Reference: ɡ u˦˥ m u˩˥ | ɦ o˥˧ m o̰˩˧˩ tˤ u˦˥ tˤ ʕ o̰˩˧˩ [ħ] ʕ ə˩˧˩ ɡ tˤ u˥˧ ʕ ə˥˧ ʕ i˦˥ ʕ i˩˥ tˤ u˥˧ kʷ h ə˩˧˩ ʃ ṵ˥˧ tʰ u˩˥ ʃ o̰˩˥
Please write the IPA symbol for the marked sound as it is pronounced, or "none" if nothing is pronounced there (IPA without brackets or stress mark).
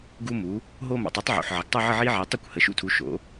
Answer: ħ